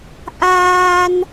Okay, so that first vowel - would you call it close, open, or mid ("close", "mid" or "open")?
open